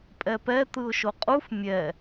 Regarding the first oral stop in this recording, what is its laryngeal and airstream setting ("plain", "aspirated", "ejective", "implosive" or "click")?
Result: ejective